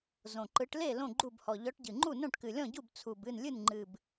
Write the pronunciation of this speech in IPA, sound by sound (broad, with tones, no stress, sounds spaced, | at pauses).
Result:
z õ˨˩ ǃ ɯ˨˦ ʈ l e˥˩ l õ˥˩ ɡ͡ǃ u˥˩ b h ɔ˨˩ ʎ ɔ˨˦ ʈ ɟ ɨ˨˩ ŋ͡ǃ u˥˩ n õ˥˩ ʈ k ɨ˨˩ lʲ ɔ̃˥˩ ɟ u˥˩ b t͡sʰ u˨˩ b ɨ˥˩ n lʲ ɨ˥˩ n ŋ͡ǃ ɨ˨˩ b